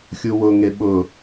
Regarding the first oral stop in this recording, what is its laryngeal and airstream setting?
implosive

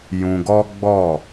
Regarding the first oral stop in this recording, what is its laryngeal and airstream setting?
plain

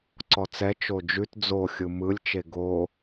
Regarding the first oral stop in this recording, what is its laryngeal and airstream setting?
click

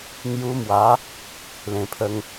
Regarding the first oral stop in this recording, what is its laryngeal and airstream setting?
aspirated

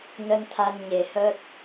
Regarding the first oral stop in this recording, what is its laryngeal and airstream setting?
aspirated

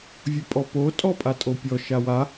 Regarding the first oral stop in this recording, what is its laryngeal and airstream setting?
ejective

